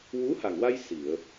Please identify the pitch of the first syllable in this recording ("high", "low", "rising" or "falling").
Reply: rising